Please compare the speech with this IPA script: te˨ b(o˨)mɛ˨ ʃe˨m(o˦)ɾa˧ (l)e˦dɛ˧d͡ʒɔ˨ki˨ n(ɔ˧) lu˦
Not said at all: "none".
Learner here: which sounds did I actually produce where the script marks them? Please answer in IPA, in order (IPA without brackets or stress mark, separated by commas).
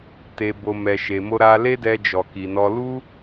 o˨, o˧, l, ɔ˧